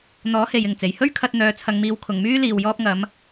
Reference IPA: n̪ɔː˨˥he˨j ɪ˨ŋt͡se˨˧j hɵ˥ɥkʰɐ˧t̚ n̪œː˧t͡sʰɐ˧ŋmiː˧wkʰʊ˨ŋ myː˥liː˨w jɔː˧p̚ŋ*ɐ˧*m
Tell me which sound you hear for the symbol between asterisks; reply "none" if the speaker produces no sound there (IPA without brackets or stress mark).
ɐ˨˧